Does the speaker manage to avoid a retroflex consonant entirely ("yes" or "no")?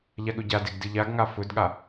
yes